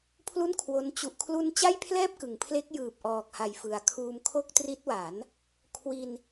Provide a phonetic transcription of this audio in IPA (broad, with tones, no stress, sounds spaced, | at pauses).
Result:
pʰ l u˥˩ n kʰ w o˦˥ n t͡ɕ u˨˩ ʔ kʰ l u˧ n t͡ɕ a˥˩ j pʰ l ɛː˥˩ p̚ k ɯ˩˦ ŋ pʰ l e˦˥ k̚ j ɯː˨˩ p̚ ʔ ɔː˨˩ k̚ h a˨˩ j f ɯ˩˦ a̯ kʰ uː˧ m kʰ o˥˩ k̚ t r i˦˥ t̚ w a˩˦ n | kʰ w i˧ n